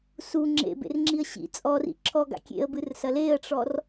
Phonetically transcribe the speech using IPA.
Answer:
su ŋ͡ǁḛbḛrŋ͡ǁiə̯ ɕḭ t͡sʼɔrḭ ǁʰɔɡa̰ kʲḛə̯bɨrsɐ leə̯ʈ͡ʂɔr

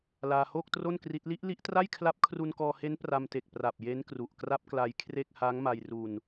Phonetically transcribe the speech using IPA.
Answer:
laː˧hoː˥˩k̚tro˥˩nkri˦˥t̚ li˦˥ʔli˦˥ʔtra˥˩j kʰla˦˥p̚kʰru˧nkɔː˧he˦˥n pra˧mte˨˩k̚ pra˨˩p̚ je˦˥nkru˨˩ʔkra˦˥p̚kla˧j kʰre˥˩k̚ haː˦˥ŋma˧jru˧n

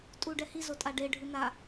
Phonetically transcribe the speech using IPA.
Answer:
tʼuɖɛhi zotʼaɖe ɖʱɯna

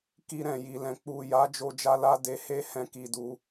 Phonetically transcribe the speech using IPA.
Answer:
ki˧ɾɛ̃˨ji˨lɛ̃˨ k͡pu˨ja˨˦ d͡ʒo˧d͡ʒa˦la˦ de˧he˦ hɛ̃˦˨ ki˧du˧

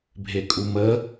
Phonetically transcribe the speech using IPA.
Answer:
bʱekʼumə

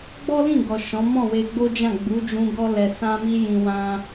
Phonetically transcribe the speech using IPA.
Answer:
ɡ͡bɔ˦lĩ˦˨ ɡɔ˨ ʃɔ̃˨˦ mɔ̃˦˨we˧ɡ͡bo˦d͡ʒã˦˨ ɡ͡bu˨˦d͡ʒũ˧ ɡɔ˧lɛ˨ sã˧mi˧ jĩ˧wã˦

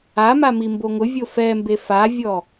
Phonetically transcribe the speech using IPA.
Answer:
ama mimboŋʊvʲo fɛmbe favʲɔ

